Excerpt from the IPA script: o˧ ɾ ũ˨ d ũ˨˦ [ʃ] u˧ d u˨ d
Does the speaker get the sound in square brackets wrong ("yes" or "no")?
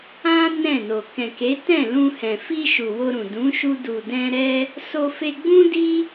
no